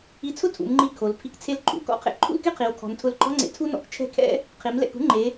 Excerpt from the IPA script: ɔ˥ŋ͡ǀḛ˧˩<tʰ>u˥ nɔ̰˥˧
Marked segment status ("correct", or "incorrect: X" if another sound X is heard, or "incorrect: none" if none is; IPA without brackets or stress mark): correct